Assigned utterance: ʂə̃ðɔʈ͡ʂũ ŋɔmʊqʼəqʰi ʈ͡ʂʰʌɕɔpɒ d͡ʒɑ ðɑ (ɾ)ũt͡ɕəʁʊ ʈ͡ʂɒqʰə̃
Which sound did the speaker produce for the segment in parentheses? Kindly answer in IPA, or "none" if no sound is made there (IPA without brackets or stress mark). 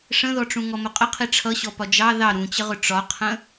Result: ɾ